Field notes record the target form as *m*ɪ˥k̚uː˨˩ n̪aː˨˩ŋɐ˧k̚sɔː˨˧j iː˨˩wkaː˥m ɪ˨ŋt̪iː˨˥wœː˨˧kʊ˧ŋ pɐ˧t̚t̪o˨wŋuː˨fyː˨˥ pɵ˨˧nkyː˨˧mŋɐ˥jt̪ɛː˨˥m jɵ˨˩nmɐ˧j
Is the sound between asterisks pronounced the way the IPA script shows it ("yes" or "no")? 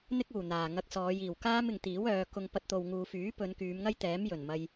no